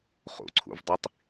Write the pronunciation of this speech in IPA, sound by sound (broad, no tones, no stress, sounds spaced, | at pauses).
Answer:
χ ṵ ǀʰ ṵ v dˤ i tˤ